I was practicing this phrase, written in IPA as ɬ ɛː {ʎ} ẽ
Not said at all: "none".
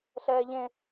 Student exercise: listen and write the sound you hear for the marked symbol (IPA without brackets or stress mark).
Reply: ʎ